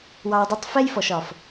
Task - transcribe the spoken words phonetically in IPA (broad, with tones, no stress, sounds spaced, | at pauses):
w ɑ˧ w dˤ ɪ˦ tˤ f ɛ˦ j f ɔ˨ ʃ ɒ˨ f